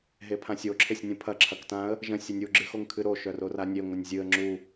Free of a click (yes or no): no